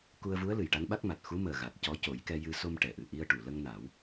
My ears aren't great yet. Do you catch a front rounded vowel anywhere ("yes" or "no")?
no